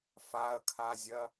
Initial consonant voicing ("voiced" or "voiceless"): voiceless